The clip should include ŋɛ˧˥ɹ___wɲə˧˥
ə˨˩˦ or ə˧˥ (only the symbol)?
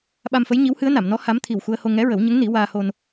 ə˨˩˦